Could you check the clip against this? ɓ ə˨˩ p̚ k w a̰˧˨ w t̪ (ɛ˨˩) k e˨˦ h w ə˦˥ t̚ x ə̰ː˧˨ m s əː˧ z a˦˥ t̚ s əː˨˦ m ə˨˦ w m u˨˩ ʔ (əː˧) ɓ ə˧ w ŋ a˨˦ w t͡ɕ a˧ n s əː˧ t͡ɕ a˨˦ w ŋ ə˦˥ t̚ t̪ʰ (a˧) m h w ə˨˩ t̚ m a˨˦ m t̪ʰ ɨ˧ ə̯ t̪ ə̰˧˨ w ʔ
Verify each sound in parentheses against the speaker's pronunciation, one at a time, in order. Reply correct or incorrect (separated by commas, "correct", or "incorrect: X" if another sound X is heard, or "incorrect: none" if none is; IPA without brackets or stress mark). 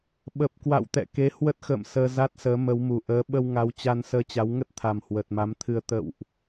incorrect: ɛ̰˧˨, incorrect: əː˨˦, incorrect: a˨˩